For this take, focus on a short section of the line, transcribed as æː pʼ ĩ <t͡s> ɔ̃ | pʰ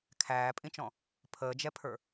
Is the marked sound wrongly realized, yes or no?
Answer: yes